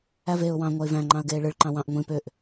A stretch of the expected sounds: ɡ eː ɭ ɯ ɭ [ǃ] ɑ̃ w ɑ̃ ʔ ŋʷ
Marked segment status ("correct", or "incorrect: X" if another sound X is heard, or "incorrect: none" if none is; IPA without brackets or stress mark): correct